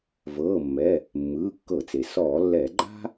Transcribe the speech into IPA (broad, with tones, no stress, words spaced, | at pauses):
vɤː˩˧˩mːɛ˩˧˩ | mːɯː˩˧˩kːɤ˧˩˧t͡se˩ sɔː˧˩˧lːɛː˧˩˧ ɡ͡ǃa̤˥